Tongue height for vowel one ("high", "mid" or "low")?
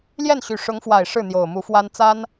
mid